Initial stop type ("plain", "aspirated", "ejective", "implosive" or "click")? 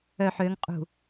ejective